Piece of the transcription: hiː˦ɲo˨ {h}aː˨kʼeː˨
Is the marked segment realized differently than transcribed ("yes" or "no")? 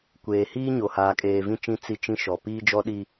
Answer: no